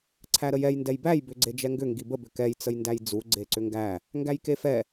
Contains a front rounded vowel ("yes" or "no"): yes